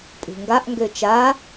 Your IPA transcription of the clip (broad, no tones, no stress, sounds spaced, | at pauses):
pʼ ṳ ŋ ɡ a ʔ ŋ ɡ ø t͡ʃ a